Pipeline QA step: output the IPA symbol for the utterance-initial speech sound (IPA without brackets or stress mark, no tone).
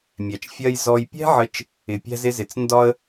mʲ